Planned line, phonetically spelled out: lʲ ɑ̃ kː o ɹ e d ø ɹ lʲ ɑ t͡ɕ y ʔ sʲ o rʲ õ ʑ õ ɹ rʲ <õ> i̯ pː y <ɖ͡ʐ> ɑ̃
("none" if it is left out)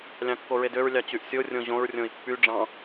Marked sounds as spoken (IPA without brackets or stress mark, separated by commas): õ, ɖ͡ʐ